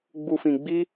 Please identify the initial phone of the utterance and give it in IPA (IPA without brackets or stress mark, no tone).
ɡ͡b